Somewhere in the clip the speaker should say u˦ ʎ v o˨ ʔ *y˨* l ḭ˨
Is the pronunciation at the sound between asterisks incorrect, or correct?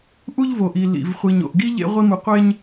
incorrect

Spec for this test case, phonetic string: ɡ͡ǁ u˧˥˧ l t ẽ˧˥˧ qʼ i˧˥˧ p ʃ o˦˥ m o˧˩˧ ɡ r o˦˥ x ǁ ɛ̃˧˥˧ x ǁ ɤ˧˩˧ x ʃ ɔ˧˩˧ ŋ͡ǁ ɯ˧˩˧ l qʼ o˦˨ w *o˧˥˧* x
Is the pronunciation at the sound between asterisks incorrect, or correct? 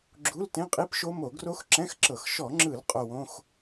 incorrect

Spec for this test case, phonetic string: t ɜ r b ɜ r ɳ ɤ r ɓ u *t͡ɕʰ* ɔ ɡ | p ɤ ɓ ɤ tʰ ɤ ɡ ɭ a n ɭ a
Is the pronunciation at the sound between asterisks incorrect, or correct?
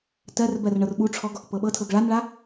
incorrect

